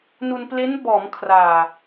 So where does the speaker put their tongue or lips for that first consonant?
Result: tongue tip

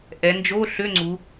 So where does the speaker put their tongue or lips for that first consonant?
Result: throat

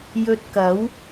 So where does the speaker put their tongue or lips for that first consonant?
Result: palate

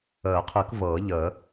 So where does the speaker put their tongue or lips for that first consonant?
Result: uvula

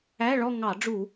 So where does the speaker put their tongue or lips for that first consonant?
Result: retroflex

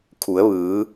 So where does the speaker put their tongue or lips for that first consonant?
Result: velum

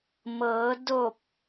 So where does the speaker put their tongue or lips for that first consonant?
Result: lips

